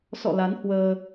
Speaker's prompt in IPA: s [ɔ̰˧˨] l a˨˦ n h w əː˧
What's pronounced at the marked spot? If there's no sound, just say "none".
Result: ɔ̰˧˨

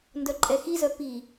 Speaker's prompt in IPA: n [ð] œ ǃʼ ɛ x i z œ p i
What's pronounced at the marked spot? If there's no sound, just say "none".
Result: d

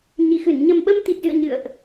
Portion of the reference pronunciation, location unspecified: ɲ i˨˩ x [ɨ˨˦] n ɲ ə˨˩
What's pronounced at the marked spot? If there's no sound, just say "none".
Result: ɨ˧˩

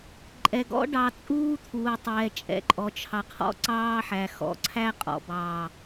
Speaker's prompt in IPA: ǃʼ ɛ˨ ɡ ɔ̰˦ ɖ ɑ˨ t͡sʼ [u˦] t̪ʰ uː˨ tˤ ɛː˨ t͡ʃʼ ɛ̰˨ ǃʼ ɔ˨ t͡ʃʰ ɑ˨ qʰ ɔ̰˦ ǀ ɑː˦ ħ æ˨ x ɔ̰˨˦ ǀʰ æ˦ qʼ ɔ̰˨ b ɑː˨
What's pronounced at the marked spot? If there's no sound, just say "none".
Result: uː˦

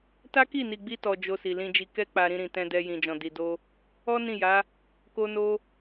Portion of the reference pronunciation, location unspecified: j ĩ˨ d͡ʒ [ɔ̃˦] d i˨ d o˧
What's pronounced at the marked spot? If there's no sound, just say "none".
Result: ɔ̃˨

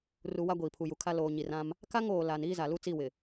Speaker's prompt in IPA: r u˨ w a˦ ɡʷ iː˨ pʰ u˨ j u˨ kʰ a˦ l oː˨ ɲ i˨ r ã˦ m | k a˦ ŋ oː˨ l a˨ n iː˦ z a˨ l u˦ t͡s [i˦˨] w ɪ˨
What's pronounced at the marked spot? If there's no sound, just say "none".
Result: i˦˨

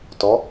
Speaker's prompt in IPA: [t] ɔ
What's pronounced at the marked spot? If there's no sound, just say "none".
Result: t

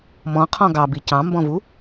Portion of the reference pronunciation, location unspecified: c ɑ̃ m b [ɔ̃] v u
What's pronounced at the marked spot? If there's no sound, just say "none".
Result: ɔ̃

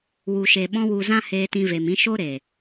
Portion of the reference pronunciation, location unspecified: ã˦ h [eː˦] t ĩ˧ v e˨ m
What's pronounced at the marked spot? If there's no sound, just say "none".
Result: eː˧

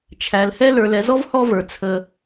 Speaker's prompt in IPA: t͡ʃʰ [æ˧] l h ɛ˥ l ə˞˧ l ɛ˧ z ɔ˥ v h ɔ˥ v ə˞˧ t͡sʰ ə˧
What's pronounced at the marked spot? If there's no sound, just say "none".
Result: æ˧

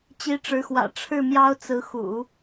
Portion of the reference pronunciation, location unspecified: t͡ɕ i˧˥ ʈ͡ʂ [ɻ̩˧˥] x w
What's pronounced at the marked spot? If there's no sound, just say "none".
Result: ɻ̩˧˥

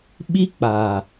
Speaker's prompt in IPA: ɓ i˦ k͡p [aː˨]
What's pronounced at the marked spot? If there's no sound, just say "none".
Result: aː˨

